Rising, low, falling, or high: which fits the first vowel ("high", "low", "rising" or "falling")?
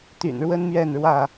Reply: low